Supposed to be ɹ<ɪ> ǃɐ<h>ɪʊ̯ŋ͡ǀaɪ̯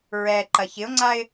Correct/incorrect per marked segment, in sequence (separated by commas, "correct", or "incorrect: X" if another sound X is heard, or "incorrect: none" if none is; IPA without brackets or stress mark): incorrect: ɛ, incorrect: ç